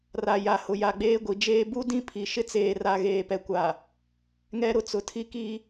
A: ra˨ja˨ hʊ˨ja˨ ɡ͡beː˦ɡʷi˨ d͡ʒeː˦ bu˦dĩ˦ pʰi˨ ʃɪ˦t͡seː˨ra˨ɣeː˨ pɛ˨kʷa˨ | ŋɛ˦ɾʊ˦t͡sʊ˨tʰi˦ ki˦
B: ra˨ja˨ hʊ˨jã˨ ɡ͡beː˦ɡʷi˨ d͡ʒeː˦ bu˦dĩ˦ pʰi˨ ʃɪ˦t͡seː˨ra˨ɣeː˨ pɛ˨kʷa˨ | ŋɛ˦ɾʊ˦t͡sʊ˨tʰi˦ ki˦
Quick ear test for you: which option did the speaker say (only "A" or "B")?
A